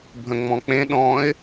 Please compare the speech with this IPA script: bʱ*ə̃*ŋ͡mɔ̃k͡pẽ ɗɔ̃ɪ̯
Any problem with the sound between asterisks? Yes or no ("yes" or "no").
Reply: no